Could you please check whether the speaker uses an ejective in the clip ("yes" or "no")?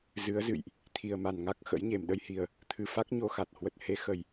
no